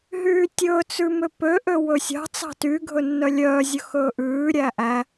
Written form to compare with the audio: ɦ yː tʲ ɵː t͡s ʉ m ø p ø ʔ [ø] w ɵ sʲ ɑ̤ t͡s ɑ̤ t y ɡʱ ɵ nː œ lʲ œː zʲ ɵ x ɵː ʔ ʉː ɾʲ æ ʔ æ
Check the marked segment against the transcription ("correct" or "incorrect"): correct